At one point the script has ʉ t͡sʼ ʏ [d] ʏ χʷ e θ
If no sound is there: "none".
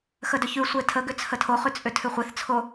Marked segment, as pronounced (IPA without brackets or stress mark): tʰ